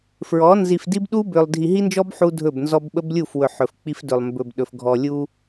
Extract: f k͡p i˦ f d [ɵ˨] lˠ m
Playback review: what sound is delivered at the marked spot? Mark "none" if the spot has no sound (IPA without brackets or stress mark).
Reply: ɵ˨